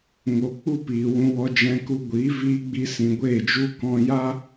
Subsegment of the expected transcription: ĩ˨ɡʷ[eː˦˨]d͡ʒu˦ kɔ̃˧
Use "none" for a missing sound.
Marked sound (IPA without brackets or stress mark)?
eː˦˨